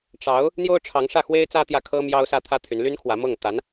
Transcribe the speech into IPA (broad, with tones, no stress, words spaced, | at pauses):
ʈ͡ʂɑ˧˥ʊ̯ | n̪jo˥ʊ̯ʈ͡ʂʰɑ˧˥ŋ ʂä˥˩xwe˥ɪ̯ t͡sä˥t̪jä˥˩ kʰɤ˥ mjɑ˥ʊ̯sä˥t̪ʰä˥t̪ʰy˧˥n ly˥nkʰwä˧˥mɤ˥˩ŋ t̪a˧˥n